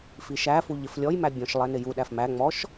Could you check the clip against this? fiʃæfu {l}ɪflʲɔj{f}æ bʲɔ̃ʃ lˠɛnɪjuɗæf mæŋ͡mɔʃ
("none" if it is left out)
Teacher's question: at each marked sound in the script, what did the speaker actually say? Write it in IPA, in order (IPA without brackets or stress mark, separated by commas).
ʎ, m